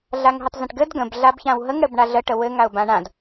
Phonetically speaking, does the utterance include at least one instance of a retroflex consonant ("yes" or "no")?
yes